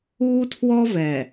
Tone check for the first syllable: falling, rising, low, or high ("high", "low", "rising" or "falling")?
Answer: high